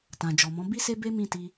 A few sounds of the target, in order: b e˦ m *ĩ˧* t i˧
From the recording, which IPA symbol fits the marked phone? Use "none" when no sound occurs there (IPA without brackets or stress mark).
ĩ˦˨